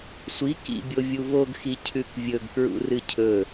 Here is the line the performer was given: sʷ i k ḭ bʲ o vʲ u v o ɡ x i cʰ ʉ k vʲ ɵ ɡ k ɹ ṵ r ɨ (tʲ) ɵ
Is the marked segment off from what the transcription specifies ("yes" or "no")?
yes